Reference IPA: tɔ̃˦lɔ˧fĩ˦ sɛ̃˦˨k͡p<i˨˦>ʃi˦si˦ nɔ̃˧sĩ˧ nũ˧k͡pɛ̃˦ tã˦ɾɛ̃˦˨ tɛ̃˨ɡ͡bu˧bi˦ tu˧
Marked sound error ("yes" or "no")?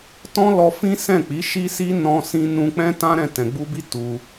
no